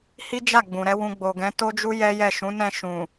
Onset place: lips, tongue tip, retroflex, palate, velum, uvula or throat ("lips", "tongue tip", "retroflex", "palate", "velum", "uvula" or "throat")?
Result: throat